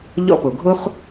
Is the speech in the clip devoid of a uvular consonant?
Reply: no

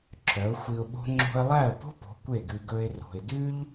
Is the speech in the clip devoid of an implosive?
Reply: no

